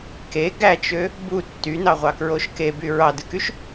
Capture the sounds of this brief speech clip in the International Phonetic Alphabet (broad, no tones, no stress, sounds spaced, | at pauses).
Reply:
k e ɡ æ t͡ʃ ø | b u tː y n ɑ ʁʷ ɑ k ɹ o ʃ k e b y ɹ ɑ d ɯ k y ʃ